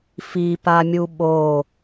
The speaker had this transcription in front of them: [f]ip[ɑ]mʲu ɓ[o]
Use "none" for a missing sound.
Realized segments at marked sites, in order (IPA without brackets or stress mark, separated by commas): f, a, o